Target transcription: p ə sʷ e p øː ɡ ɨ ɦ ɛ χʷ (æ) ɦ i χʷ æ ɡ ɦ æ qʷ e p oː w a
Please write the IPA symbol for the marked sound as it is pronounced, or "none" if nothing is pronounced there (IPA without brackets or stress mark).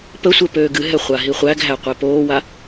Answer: a